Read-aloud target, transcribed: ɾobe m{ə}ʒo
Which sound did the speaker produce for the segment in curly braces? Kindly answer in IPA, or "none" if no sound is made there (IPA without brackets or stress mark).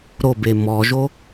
ɔ